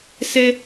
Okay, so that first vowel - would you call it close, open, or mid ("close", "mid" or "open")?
mid